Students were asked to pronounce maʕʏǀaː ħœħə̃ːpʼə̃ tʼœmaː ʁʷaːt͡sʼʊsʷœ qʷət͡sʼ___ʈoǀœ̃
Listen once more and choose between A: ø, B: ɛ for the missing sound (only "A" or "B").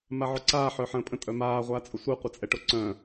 B